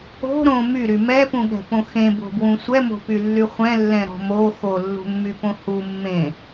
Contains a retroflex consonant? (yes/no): no